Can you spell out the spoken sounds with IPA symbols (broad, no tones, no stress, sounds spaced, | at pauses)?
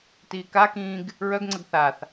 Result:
t iː k a k ĩː ɡ | ɹ œ ɡ ŋ͡ǀ ə ɡ θ a θ